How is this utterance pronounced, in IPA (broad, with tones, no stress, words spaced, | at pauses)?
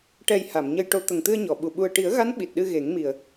ʈɛ˨˩j ha˨˩˨mɲə˧jʈo˧˥ t̪ə˨˩ŋt̪ɨ˧ə̯ɲɔ˨˩˨ɓu˨˩ ɓu˨˩ə̯ʈi˨˩˦ə̯ɣa˧˥n ɓi˨˩t̚ɗɨ˧ ɣe˨˩˦ŋmi˨˩ə̯